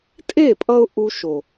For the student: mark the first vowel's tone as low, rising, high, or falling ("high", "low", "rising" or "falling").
falling